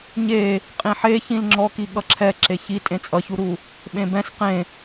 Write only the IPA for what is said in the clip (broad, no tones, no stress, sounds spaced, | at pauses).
ɲ e | qʼ ĩ ħ e ç ĩ l ŋ͡ǁ ɔ k i ɠ ʌ ǁʰ ɛ ǁ e ç i tʼ ẽ t͡sʼ ʌ ç u ɾ u | ɓ ẽ b ɛ̃ s q ẽ